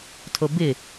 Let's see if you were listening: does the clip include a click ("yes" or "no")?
no